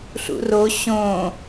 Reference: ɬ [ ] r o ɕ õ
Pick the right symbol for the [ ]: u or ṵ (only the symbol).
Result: ṵ